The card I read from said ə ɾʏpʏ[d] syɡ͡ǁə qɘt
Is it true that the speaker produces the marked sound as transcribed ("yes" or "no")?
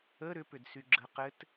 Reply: yes